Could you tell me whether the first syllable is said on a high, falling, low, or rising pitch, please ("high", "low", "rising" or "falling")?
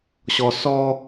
low